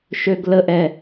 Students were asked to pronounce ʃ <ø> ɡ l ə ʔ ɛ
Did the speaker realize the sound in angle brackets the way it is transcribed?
yes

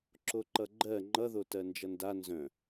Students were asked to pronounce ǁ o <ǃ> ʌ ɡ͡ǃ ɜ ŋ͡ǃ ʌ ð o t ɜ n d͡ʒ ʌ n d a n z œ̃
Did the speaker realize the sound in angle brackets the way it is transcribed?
yes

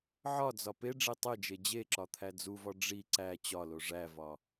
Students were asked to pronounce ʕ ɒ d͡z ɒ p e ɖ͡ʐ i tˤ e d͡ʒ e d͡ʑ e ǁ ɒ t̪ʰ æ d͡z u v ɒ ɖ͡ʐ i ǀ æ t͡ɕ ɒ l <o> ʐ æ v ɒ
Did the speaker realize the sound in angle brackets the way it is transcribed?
yes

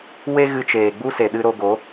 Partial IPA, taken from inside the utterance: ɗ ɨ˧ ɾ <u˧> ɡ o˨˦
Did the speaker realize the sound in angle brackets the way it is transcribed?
no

